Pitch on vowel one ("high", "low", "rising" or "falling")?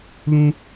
high